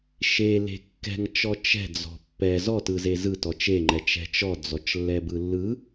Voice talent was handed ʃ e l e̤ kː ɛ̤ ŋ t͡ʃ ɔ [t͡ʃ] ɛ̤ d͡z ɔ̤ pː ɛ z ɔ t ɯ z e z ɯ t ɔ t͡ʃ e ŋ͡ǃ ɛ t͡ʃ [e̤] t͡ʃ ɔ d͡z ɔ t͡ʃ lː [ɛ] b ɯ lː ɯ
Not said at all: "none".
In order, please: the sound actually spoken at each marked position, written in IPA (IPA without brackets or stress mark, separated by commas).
t͡ʃ, ɛ̤, ɛ